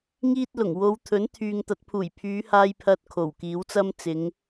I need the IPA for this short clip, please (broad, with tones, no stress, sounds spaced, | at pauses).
ŋ iː˥ t̚ l ʊ˨˩ ŋ w o˨˧ w t̪ʰ ɵ˨˥ n t̪ʰ yː˨ ŋ t̪ ɐ˨˥ t̚ pʰ uː˨˩ j pʰ yː˨˧ h aː˧ j pʰ ɐ˧ t̚ kʰ o˨˩ w k iː˨˥ w t͡s ɐ˥ m t͡s ɪ˨˧ ŋ